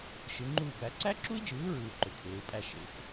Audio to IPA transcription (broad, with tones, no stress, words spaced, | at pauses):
ʃɯ˨˦ŋ͡ǃuː˥˨bæ˨˦ ǀæ˦˥ǁu˦˥i̯d͡ʒɯː˨˦ɹɯː˨ ǃø˨kʰeː˨˦u̯pʼæ˥˨ ʃḛ˨˦t͡s